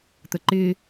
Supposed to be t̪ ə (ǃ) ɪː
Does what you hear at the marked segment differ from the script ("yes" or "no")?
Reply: no